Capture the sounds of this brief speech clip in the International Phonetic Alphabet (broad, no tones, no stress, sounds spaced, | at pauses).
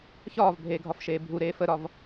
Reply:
ç ɒː v bʱ eː ɡʱ ɒ f ʃ eː bʱ u ɾ eː f ə ɾ ɒ v